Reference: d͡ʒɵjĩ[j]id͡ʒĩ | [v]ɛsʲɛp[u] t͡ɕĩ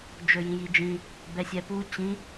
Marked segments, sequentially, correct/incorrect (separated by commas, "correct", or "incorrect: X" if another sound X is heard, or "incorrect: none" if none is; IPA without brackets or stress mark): correct, incorrect: b, correct